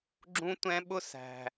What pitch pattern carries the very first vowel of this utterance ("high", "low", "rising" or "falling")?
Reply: high